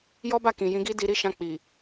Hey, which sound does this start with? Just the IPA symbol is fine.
j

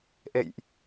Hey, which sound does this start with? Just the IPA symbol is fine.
ʔ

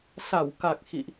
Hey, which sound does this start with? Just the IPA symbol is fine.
s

